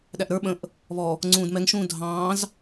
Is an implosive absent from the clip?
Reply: no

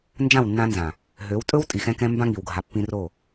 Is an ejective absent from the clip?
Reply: no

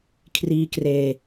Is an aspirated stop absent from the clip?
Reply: no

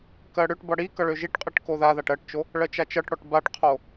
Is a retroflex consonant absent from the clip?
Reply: no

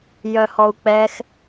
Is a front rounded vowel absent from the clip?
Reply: no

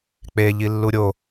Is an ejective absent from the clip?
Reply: yes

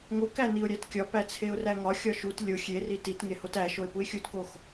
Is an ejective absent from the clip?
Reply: yes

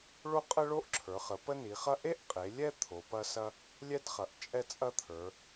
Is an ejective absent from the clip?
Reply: no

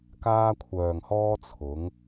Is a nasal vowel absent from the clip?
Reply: yes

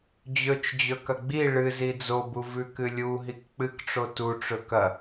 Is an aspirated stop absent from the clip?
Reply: yes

